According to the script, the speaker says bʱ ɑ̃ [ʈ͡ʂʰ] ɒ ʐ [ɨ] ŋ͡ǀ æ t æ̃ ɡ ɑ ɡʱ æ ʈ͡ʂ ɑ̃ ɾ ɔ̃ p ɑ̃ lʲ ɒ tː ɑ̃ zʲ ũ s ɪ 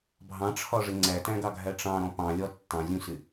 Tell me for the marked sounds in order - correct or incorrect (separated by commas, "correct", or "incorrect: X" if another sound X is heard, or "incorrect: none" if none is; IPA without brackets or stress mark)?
correct, incorrect: ɪ